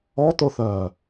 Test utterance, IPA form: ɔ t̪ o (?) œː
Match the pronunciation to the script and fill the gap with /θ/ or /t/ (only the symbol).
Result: θ